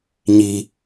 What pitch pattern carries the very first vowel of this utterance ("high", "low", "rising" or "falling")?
high